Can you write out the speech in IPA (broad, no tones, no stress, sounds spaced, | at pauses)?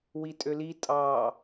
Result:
w i tʼ ø l i tʼ ɑ